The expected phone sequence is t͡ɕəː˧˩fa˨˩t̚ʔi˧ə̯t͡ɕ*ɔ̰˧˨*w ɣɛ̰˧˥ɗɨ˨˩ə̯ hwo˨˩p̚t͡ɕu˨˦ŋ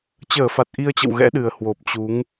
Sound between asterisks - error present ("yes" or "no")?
yes